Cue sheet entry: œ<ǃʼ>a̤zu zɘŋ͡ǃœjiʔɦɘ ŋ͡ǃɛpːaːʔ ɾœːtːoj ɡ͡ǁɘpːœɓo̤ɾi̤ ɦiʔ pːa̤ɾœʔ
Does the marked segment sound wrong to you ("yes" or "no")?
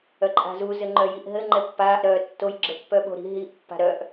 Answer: no